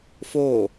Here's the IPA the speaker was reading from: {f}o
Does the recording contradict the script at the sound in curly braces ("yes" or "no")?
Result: no